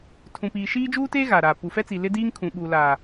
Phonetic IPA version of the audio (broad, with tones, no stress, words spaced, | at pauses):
tʰũ˨piː˨ ʃiː˦d͡ʒuː˦teː˦ ɣa˨ɾaː˨ pu˨fɛ˦t͡si˨ lɪ˦diː˦ŋ kʰũ˨ɓuː˨ laː˨